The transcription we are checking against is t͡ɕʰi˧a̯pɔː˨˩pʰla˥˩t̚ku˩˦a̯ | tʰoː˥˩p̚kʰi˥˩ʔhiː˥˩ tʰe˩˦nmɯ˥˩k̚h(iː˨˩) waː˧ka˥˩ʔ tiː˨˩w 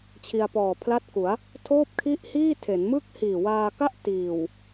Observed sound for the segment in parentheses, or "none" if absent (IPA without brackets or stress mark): iː˨˩